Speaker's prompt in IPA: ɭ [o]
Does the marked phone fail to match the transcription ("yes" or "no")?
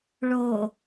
no